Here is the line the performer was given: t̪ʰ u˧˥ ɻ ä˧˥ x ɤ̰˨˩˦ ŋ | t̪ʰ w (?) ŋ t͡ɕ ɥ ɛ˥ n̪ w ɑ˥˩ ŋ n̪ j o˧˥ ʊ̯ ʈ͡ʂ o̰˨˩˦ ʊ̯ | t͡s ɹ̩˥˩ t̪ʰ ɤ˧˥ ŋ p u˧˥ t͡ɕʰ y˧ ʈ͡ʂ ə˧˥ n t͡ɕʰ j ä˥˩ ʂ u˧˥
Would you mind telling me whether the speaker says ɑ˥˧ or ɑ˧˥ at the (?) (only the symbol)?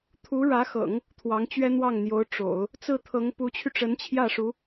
ɑ˧˥